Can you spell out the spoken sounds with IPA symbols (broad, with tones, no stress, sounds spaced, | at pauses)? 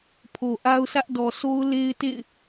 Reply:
pʰ o˨ ʔ a˦ ʊ̯ s ä˦ ʔ d ɔ˨ s o˦ ʊ̯ l e˦ ɪ̯ t ḛ˦˨ ɪ̯